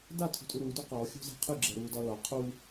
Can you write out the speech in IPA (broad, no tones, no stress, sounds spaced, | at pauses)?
d a tʰ ṳ tʼ u ɾ uː d u q ɔː xʲ ṳ z a̤ qʰ ɯ ɡ͡ǁ ɛ ɾ uː d ɒ l ɒ qʰ u